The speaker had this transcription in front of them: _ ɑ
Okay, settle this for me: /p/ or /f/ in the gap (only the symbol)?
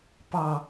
p